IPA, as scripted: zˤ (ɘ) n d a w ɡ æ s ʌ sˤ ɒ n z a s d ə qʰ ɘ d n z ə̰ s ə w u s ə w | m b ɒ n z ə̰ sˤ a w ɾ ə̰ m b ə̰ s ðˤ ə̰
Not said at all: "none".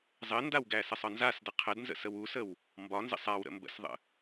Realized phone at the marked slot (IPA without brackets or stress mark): ɘ